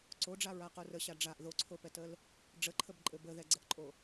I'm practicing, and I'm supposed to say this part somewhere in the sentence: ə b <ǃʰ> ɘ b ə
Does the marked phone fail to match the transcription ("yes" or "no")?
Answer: yes